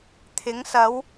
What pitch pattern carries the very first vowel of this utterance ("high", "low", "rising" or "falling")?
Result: rising